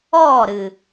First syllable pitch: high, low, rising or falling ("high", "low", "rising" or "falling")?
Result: falling